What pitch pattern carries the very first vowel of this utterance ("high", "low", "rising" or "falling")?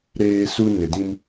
high